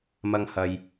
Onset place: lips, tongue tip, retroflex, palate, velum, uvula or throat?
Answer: lips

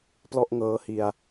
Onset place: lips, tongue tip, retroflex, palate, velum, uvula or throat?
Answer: lips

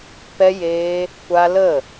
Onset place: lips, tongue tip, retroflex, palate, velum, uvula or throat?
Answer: lips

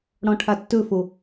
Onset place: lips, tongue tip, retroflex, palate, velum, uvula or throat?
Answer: retroflex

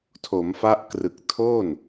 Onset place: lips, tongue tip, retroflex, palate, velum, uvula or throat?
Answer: tongue tip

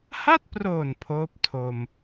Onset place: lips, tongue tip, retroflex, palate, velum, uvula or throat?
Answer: throat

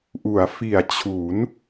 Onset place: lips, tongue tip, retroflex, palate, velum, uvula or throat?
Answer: throat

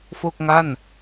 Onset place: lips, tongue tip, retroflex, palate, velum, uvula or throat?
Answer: lips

